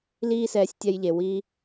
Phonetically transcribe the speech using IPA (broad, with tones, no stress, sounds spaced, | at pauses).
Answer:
l iː˦ s ɛː˧ sʲ tʲ ɛ˧ j ʎ e˨ w i˧